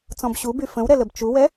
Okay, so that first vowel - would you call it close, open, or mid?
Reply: mid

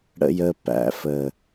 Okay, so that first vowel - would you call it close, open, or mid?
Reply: mid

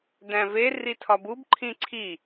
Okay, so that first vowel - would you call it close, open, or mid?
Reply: open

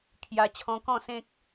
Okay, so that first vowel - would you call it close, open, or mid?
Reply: open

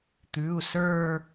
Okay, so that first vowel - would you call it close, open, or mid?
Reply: close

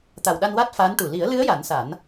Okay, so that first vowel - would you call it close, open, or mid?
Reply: open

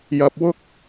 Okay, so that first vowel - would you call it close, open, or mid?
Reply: open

